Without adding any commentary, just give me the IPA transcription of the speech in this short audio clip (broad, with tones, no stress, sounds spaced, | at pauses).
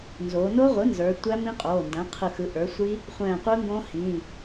n z oː˩˧ n o˦˥ ʁʷ ɯ˩˥ n z ə˞˩˧ tʷ æ˦˥ m ĩ˦˥ qʼ oː˩˧˩ n d æ̃˩˥ qʰ ɯ˧˩ x ɯ˩˥ ʔ ə˞˩˥ sʷ i˦˥ | χʷ ɛ̃ː˧˩ qʷ ɯ˦˥ ŋ ɡ õ˦˥ h ĩ˩˧˩